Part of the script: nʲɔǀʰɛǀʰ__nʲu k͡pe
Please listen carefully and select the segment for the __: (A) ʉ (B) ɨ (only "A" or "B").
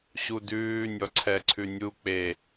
A